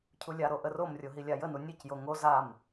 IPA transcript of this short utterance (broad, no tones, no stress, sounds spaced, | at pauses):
cʰ u lʲ a ɾ o ʔ ə r o m rʲ o ɦ i lʲ a j ə n u nʲ ʉ c j o ŋ o z a m